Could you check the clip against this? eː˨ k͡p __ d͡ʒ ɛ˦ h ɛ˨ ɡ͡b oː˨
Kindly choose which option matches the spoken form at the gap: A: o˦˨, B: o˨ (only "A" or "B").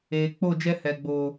A